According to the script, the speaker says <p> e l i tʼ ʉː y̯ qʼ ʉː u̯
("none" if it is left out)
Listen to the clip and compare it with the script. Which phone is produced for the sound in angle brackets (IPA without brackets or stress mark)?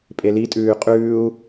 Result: pʼ